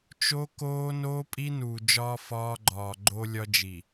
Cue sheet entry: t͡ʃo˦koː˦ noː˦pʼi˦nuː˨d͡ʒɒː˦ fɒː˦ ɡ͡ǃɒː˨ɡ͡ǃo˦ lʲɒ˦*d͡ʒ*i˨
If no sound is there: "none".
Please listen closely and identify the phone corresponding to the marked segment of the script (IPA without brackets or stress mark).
d͡ʒ